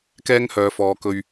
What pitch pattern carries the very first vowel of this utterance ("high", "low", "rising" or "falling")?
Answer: high